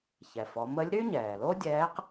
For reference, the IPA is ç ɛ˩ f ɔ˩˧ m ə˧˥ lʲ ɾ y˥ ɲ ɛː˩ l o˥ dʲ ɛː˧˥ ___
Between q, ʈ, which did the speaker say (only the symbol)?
q